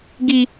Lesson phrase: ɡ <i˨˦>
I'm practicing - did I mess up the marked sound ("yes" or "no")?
yes